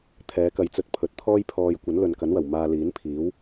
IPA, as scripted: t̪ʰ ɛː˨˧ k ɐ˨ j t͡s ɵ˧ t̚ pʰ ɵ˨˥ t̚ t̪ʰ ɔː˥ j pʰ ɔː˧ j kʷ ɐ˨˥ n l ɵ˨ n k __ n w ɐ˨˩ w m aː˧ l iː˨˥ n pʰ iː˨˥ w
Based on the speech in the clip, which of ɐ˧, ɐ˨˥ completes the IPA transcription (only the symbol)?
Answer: ɐ˨˥